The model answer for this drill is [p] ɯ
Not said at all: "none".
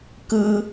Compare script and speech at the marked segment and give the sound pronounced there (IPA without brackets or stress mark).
k